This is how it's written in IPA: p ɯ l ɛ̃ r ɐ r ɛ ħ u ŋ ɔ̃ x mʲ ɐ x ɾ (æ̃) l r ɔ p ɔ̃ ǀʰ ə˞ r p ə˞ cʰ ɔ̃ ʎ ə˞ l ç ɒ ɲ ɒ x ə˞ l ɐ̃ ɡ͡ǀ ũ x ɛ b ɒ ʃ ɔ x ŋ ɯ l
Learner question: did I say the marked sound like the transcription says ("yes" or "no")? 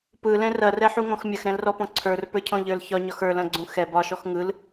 no